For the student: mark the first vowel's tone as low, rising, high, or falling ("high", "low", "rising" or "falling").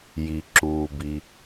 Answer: low